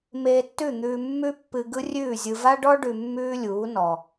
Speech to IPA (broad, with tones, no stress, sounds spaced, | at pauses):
m eː˧ tː ʉ˦˨ n̪ ʉː˧ mː ʉ˦ pː ɨ˧ ɡ ɯ˦ rʲ ʉː˦˨ zʲ ɯ˧ v a˦ ɖ ɔ˦ ɖ ʉ˧ mː ʉː˦ lʲ uː˨˦ n ɔ˨